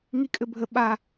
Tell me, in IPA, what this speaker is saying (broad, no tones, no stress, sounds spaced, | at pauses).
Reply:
ŋ i kʼ ɘ bʱ ə ɓ a